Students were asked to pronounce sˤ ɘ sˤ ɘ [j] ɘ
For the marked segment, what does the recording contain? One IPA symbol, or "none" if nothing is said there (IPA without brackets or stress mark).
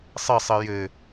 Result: j